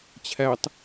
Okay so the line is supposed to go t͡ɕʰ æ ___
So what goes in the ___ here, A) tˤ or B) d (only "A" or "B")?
A